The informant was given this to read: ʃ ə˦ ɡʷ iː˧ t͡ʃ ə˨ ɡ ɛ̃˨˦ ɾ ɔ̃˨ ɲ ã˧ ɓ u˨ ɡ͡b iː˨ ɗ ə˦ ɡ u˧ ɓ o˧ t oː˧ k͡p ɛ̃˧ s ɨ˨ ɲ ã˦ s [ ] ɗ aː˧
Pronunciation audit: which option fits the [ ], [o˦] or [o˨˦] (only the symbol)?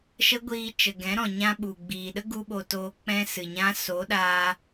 o˨˦